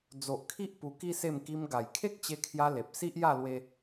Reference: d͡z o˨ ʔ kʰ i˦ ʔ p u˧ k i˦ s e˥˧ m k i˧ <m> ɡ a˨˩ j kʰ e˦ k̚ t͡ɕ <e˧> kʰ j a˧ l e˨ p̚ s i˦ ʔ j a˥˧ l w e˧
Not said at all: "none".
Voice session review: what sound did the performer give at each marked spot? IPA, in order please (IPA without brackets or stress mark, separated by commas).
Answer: m, e˧